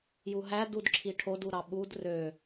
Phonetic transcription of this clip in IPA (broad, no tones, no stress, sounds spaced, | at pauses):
j u ɦ æ d u d ǁʰ i ʈʰ o d u ɾ ɑ ɓ u d r ø